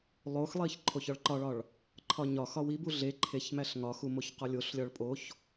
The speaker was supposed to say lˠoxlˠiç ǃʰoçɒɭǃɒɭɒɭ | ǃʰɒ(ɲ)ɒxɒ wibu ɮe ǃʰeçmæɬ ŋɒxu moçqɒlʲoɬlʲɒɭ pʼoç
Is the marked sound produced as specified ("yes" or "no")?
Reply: yes